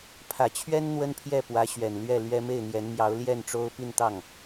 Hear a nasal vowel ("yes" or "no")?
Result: no